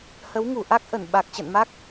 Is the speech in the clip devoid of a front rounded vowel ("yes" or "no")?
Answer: yes